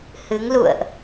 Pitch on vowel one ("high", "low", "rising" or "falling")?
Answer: rising